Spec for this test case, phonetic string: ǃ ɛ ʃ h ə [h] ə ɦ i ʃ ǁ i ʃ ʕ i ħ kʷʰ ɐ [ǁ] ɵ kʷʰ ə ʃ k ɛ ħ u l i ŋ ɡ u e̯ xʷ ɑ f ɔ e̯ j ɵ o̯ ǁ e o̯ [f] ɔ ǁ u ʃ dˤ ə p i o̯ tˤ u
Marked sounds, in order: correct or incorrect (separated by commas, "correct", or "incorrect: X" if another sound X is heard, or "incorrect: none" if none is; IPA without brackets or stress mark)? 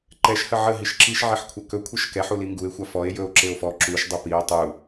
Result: incorrect: ʕ, incorrect: k, correct